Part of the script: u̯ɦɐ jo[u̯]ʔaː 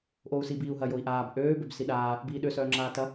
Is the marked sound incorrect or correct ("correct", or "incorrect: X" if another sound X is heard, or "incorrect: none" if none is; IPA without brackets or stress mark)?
incorrect: i̯